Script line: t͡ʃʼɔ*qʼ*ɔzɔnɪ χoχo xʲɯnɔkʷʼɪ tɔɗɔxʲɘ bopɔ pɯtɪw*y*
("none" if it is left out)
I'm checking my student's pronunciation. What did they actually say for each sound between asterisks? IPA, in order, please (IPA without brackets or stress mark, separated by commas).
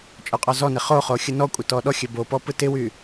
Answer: qʼ, y